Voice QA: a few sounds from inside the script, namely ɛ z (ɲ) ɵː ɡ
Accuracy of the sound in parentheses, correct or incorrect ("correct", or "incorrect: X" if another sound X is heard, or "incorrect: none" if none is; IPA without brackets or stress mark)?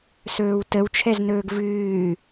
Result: incorrect: n